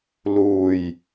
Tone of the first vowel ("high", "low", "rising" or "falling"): low